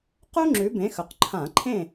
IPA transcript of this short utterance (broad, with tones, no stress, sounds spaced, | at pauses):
q u˥ ŋ͡ǁ ʉ˨˦ b ẽ˨˦ x ɵ˩ q ǃʰ ã˧˩˧ ǃʰ ẽ˥˨